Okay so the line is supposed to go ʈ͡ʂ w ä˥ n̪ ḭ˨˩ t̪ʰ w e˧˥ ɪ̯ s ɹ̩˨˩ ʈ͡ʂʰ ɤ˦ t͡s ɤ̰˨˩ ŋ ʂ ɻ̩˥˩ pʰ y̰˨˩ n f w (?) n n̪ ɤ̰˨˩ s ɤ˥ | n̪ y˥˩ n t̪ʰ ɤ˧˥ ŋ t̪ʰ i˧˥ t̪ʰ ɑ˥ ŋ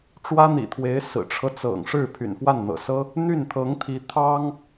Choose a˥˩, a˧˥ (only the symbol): a˥˩